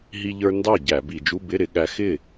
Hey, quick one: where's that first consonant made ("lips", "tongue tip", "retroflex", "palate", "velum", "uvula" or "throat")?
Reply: throat